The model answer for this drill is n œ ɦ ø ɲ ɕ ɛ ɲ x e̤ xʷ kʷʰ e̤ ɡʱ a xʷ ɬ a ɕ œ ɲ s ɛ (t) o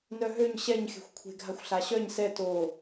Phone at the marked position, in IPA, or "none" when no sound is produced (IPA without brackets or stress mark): t